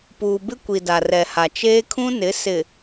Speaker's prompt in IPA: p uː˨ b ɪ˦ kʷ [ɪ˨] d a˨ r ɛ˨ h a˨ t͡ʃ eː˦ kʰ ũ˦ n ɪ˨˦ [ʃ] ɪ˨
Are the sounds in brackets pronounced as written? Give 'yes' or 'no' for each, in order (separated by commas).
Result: no, no